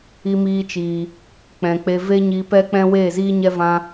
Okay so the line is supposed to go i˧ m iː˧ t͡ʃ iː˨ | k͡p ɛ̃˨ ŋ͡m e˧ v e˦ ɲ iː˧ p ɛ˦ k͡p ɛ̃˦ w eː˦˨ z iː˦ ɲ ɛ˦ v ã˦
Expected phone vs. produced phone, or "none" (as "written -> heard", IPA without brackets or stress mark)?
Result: ŋ͡m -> k͡p